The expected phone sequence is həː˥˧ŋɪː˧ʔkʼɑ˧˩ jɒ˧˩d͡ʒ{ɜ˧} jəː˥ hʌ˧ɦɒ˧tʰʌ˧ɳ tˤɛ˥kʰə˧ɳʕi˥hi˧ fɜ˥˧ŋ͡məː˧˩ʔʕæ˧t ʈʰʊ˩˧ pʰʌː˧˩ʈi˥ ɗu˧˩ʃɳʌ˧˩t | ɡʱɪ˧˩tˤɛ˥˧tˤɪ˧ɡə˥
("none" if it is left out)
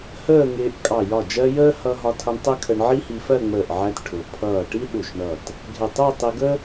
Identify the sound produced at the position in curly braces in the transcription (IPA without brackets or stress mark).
ɜ˧